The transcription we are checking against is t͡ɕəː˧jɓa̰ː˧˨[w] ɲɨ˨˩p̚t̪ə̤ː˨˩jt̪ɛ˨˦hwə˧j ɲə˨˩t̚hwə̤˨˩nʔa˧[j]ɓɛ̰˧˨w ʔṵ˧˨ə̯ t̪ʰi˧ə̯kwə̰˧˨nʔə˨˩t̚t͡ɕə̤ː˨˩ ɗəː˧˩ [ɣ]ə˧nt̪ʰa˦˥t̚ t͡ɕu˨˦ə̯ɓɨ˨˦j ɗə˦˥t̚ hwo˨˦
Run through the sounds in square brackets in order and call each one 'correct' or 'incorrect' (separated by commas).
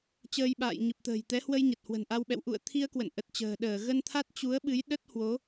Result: incorrect, incorrect, correct